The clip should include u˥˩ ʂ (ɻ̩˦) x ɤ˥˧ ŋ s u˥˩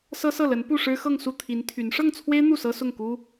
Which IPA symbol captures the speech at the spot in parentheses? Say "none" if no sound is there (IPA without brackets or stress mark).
ɻ̩˥